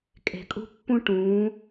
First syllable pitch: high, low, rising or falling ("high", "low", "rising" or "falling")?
low